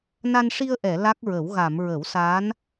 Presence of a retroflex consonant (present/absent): present